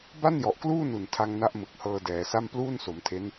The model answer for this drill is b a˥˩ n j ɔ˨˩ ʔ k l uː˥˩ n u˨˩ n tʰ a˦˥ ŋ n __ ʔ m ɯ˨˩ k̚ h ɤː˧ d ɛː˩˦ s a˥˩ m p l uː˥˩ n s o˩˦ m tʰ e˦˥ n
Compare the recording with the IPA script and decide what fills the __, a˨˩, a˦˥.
a˦˥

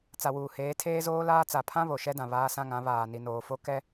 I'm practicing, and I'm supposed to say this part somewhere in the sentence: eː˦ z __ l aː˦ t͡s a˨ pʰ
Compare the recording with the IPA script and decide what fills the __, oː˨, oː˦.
oː˦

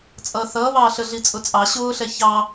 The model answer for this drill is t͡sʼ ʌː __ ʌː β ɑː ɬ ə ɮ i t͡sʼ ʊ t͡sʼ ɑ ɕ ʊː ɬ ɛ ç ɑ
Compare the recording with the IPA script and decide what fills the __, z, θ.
θ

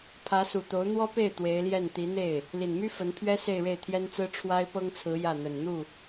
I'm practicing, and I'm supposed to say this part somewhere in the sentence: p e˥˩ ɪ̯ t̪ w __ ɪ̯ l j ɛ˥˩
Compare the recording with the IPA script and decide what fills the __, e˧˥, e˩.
e˧˥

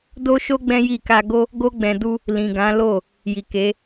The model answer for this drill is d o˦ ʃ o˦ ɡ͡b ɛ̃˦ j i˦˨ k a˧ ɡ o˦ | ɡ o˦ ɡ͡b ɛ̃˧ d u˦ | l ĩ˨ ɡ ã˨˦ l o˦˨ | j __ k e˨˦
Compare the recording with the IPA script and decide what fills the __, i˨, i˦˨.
i˨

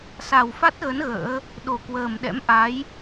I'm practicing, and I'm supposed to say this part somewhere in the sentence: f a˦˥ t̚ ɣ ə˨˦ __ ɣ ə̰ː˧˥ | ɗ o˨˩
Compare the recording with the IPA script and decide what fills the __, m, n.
n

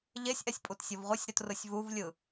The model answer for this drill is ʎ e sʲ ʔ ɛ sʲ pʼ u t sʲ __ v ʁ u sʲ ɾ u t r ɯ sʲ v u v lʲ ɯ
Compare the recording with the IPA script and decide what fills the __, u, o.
o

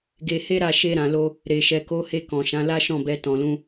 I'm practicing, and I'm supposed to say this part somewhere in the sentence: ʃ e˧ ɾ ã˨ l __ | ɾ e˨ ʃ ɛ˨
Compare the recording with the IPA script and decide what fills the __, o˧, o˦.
o˧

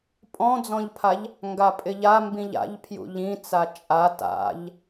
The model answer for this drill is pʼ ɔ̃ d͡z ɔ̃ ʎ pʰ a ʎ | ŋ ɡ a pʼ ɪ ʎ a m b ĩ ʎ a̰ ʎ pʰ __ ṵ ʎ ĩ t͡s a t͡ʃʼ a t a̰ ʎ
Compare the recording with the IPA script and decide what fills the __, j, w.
j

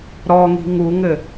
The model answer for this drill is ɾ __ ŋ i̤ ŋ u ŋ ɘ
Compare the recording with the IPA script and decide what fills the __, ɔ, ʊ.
ɔ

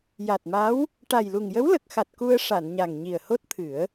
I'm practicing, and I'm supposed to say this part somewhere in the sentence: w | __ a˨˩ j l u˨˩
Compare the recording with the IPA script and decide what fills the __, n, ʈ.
ʈ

